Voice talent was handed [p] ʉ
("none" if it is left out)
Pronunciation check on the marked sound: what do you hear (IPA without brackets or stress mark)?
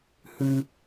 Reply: h